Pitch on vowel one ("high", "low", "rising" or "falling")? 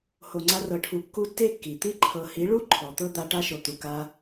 low